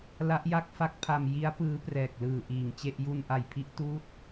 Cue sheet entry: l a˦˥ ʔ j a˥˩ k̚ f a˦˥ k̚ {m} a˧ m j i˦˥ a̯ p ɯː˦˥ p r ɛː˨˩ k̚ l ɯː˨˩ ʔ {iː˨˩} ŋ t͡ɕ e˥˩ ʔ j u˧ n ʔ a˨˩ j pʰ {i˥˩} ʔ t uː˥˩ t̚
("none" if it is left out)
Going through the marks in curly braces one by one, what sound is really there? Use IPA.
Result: pʰ, iː˨˩, i˦˥

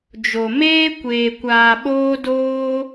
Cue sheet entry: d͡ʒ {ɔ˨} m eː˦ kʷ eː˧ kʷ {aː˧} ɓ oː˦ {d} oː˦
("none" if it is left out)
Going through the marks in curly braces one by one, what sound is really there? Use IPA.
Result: o˨, aː˧, d

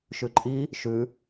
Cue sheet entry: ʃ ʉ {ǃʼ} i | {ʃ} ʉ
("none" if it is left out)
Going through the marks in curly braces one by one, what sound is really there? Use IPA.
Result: ǃʼ, ʃ

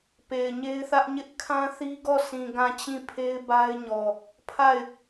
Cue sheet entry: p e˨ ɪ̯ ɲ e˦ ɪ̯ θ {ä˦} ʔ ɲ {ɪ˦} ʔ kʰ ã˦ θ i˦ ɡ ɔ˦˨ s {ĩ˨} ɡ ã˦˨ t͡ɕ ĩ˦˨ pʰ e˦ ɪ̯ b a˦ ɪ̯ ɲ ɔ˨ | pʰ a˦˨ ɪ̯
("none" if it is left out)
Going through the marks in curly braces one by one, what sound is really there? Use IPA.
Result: ä˦, ɪ˦, ĩ˨

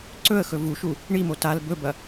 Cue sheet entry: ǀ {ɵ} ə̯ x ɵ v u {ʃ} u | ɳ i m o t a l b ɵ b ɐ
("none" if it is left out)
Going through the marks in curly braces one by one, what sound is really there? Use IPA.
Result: ɵ, ʃ

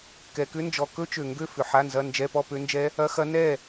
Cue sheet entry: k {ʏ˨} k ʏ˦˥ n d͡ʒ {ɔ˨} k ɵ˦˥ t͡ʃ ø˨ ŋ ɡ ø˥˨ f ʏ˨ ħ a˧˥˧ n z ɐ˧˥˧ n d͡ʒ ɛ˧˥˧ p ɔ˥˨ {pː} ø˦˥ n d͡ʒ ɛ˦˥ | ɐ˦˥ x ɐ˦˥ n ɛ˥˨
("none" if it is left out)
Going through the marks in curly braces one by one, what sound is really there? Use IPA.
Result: ɛ˨, ɔ˨, p

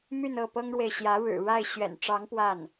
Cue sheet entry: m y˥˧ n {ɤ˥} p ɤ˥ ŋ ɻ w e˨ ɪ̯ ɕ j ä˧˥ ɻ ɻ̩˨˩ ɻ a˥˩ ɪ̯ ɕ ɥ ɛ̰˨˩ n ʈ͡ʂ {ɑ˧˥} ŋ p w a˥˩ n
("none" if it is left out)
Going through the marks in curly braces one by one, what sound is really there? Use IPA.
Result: ɤ˥˩, ɑ˧˥

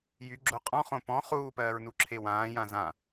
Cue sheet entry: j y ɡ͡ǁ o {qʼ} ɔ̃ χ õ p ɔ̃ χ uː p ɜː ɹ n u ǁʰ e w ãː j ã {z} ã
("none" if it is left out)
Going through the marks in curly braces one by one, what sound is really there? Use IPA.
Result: qʼ, z

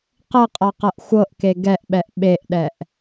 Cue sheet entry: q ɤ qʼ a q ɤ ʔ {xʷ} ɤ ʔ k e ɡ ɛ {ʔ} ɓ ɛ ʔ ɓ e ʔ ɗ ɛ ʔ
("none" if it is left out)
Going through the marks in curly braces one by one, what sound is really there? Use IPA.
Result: xʷ, ʔ

